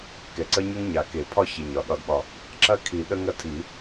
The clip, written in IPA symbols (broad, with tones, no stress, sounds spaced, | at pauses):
k ɛ˨˩ ǀ ə˥ ɲ ə˥ ŋ ɲ a˨˩ k e˨˩˦ pʰ ɒ˥ ç e˨˩ ɲ ɒ˨˩˦ ɗ ɒ˨˩˦ d ɓ ɒ˨˩ | ǁ ɐ˥ kʰ i˨˩˦ ɗ ə˥ ŋ ɐ˥ tʰ i˨˩˦